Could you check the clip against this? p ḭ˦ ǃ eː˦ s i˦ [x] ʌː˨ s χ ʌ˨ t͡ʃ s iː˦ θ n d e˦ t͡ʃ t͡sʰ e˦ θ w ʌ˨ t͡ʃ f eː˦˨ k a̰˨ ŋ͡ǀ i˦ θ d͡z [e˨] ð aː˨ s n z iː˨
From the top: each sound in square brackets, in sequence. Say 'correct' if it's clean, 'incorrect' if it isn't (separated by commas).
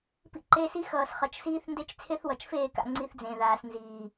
correct, incorrect